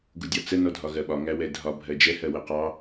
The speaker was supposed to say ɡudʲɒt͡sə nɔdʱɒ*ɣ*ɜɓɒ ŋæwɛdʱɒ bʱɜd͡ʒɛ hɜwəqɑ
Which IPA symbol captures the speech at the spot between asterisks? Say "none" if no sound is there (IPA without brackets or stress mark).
ɣ